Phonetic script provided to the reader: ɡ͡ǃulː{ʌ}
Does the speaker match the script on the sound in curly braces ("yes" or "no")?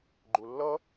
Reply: yes